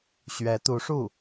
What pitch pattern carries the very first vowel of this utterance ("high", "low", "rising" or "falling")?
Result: rising